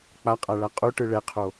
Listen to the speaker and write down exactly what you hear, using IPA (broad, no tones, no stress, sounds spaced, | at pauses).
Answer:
k͡p a qʼ a ɭ a qʼ u ʈ ɯ ɭ ɛ qʰ o